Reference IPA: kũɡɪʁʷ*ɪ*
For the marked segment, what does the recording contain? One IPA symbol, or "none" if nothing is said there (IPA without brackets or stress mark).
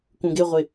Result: ɪ